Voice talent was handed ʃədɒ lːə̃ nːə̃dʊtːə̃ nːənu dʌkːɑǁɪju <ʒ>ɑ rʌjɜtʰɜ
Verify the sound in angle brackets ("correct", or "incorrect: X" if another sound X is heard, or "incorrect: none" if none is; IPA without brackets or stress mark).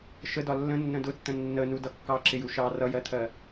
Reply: incorrect: ʃ